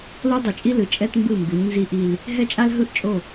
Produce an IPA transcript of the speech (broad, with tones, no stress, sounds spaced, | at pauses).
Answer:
l o˦ dˤ u˨ t͡ʃʼ i˦ l ɯ˨ t͡ʃʼ ɛ˦ t m b ɯ˦˨ m b u˨˦ ɲ n z i˦ ʔ i˦ l | ɦ ɛ˦ t͡ʃʼ a˦ l ɦ ɯ˦ ʔ t͡ʃʼ o˦˨